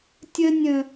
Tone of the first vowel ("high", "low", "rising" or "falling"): high